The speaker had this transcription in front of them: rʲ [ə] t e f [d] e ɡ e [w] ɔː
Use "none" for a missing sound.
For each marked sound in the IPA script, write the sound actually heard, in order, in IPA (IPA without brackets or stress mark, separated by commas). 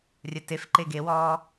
ɐ, ǃ, w